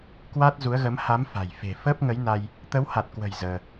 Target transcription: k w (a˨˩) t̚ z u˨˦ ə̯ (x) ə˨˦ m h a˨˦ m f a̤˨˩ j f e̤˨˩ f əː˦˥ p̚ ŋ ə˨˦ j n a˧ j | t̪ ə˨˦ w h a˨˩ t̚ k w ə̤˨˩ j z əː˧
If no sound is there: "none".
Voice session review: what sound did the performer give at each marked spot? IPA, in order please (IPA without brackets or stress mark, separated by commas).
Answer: a˦˥, ɣ